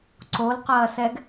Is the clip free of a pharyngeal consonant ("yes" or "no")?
yes